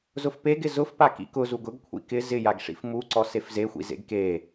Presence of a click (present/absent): present